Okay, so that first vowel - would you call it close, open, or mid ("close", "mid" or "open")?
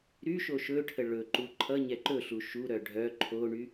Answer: close